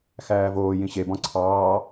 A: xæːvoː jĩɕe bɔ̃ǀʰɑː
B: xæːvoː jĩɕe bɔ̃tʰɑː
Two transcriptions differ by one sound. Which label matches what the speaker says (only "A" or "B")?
A